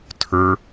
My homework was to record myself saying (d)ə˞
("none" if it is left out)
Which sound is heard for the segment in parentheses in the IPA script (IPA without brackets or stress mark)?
tʰ